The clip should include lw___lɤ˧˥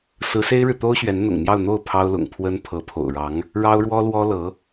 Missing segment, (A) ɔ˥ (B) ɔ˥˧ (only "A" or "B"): A